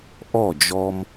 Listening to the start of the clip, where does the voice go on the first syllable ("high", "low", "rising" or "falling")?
falling